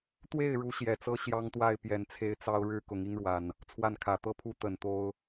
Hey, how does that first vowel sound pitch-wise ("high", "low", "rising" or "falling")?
falling